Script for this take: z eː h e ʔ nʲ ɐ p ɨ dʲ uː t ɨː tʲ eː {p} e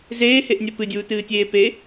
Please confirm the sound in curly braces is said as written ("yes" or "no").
yes